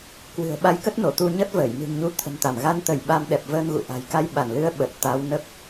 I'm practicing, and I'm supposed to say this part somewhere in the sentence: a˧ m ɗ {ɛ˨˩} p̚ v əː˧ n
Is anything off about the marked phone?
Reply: no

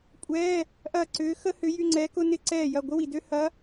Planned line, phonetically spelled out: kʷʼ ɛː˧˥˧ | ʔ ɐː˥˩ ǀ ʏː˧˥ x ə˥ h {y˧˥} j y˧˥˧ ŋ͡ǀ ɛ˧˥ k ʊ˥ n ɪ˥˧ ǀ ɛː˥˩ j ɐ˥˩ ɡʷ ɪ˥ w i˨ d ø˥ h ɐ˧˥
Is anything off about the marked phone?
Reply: yes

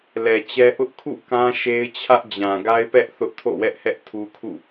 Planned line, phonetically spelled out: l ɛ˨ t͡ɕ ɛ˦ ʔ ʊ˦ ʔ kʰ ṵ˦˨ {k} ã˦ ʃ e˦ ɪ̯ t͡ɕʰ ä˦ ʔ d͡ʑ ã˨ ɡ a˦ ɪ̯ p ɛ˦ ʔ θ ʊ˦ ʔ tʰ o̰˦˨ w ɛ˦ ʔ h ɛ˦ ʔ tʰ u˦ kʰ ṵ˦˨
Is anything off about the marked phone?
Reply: no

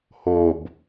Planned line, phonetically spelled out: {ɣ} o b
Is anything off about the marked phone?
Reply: yes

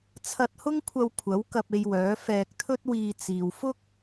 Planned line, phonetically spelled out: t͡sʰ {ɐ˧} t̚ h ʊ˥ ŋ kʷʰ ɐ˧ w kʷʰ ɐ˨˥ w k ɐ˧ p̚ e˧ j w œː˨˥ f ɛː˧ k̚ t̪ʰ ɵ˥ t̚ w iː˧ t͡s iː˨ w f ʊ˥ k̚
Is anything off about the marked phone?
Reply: no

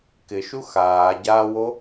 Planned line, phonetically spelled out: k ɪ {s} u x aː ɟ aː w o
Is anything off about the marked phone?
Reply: yes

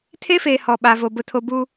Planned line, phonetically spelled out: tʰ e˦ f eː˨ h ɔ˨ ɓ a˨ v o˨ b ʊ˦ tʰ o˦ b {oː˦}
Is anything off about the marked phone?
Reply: yes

